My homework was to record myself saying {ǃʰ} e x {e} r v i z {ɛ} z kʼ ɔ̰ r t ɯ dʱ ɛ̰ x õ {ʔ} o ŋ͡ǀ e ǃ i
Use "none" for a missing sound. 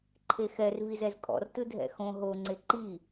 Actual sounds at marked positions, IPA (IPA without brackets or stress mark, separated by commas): ǃʰ, ɛ, ɛ, ɦ